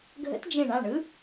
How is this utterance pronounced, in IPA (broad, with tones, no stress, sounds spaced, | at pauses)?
ɡʱ ə̰˧˥ t d͡ʒ ẽ˧˩ ɳ ã˥˩ ɳ ɯ˧˥